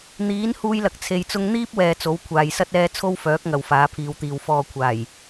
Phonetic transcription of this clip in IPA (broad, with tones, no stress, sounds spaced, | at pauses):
n̪ iː˨˥ n h uː˥ j l ɐ˧ k̚ t͡sʰ e˧ j t͡s ʊ˥ ŋ n̪ iː˥ p̚ w ɛː˨ t͡s o˨˥ w kʷʰ aː˨ j s ɐ˥ t̚ ɛː˥ t͡sʰ o˥ w f œː˨˥ k̚ ŋ ɐ˨ w f aː˨˥ pʰ iː˨˧ w t̪ iː˨ w f ɔː˨ kʷʰ aː˨˩ j